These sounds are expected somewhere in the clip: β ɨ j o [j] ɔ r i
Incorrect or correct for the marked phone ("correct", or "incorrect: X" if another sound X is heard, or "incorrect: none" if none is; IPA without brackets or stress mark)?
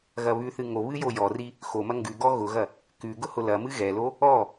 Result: correct